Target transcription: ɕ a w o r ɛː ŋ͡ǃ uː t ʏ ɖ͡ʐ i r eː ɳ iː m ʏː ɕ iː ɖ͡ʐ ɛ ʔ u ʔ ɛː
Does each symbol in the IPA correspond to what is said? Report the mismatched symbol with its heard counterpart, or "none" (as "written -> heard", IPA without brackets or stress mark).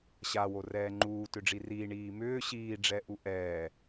eː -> iː